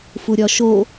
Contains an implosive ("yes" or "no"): no